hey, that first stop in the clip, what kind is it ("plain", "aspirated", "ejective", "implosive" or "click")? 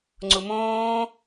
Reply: click